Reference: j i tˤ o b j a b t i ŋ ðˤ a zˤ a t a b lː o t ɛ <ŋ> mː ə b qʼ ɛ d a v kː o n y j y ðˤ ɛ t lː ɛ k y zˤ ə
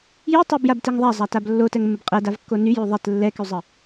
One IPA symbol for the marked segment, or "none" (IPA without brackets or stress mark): ŋ